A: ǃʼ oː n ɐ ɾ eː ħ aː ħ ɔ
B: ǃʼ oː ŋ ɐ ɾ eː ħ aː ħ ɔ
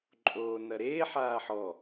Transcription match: A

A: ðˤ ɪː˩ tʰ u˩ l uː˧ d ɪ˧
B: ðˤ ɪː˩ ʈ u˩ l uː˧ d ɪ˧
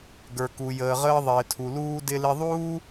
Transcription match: A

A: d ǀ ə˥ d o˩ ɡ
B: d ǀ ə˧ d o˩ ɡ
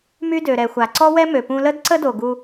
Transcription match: A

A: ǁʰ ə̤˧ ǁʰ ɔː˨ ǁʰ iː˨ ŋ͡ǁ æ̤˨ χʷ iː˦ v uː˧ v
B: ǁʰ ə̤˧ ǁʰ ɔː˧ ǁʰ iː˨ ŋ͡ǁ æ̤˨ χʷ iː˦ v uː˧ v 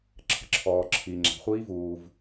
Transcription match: A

